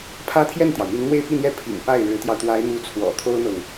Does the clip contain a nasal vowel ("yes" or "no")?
no